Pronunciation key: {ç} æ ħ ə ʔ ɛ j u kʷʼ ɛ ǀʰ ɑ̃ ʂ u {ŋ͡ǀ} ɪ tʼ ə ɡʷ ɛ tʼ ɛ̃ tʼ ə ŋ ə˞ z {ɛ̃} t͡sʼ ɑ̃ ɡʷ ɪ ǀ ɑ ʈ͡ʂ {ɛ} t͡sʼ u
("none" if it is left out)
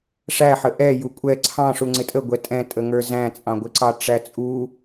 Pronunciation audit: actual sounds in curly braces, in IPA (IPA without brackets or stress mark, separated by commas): ʂ, ŋ͡ǀ, æ̃, æ